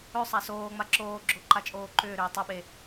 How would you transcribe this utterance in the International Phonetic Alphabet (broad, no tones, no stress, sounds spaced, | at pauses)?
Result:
ɵ sˤ a s oː ŋ͡m a ǁ oː ɡ͡ǁ o ǃ a t͡ʃʼ oː ǃ ʏː ɾ ʏː tˤ o ɓ e